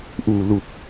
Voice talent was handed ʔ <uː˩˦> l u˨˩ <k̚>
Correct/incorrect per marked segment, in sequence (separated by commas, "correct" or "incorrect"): incorrect, correct